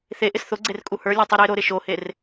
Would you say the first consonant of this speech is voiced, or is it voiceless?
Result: voiceless